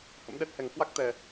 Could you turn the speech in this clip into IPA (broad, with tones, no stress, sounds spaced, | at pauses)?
h ə̰˧˥ m ɗ ɛ˦˥ t̚ h ɛ˨˩ ŋ k w a˦˥ k̚ t̪ ɛ˨˩